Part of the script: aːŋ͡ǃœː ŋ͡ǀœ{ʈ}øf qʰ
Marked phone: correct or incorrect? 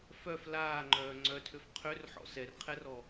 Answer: incorrect